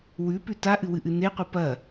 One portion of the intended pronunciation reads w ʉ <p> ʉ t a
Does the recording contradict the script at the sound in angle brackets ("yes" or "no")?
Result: no